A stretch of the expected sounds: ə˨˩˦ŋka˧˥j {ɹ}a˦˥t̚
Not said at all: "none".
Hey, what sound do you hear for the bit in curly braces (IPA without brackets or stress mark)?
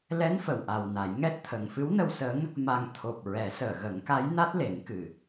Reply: n